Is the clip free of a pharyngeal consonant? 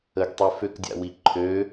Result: yes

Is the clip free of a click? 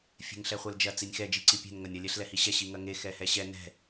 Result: no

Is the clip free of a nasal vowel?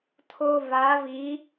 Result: yes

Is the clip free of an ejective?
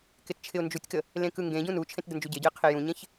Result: yes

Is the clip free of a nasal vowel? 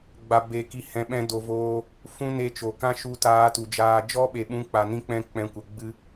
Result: no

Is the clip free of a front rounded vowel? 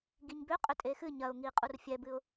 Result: no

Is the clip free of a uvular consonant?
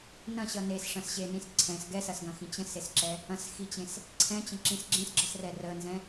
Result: yes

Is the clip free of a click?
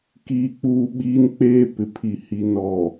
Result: yes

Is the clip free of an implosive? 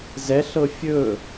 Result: yes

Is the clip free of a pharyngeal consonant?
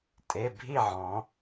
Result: no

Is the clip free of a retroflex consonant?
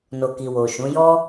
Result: yes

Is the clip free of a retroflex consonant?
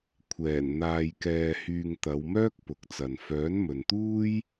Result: yes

